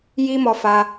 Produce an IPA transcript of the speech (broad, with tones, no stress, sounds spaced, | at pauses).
j i˦ m ɔ˧ f a˧